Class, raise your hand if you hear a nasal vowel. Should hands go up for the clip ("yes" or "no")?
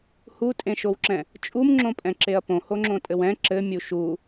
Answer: yes